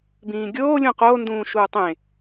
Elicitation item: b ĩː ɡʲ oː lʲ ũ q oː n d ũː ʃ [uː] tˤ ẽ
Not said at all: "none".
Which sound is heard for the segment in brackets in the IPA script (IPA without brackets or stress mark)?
uː